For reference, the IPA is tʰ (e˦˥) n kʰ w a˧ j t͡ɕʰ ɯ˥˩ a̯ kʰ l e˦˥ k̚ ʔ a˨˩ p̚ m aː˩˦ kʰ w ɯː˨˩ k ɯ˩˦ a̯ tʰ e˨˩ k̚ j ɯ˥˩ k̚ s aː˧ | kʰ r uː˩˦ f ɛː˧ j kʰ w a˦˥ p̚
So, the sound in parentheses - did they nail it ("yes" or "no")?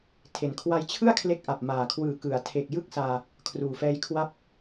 no